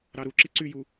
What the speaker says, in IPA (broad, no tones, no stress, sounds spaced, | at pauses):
ɾ ɑ ɾ u ǁ i ǀ y j u